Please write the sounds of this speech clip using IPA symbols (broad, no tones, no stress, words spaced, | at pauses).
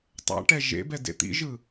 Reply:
tˤa̰ʈɛ ʒḛbɛdḛ t̪ḭʒɯ